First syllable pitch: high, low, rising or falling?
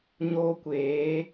high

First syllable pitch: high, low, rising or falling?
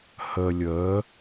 low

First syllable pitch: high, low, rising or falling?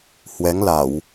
rising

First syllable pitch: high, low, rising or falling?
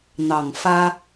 low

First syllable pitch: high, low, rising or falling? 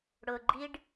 low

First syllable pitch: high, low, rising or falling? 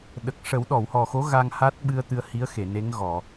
low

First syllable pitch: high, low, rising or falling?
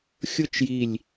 falling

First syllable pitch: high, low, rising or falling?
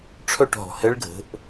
falling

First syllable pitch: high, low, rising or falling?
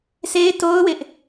high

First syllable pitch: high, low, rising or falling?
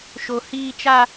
high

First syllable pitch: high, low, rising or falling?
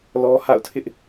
high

